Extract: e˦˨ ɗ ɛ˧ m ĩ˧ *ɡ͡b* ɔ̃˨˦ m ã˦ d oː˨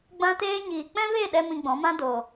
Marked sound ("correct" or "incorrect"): correct